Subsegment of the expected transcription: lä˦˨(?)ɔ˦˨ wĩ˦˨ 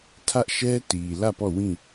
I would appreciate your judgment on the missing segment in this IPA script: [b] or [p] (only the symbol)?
p